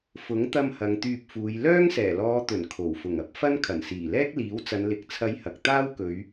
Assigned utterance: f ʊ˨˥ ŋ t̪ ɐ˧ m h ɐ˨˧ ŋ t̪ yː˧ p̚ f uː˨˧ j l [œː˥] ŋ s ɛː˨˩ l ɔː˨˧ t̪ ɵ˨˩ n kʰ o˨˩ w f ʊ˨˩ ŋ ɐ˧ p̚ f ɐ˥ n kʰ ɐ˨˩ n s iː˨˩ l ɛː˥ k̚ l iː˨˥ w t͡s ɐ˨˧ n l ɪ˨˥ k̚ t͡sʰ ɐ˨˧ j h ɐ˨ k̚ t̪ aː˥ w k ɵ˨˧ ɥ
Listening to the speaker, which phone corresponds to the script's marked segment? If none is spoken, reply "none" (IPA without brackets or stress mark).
œː˥